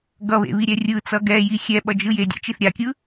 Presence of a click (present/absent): absent